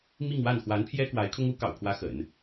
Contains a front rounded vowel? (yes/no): no